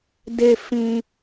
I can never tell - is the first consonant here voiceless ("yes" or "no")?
no